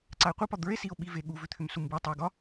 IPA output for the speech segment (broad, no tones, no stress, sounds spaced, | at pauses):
ǀ a e̯ qʷ ə p ɒ d̪ ə˞ e̯ s i o̯ ɓ i v e ɠ u v ʏ t̪ʰ ʏ m s u m b ɯ o̯ tˤ e o̯ ɡ ɒ